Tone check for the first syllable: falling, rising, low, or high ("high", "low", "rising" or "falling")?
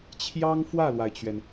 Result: high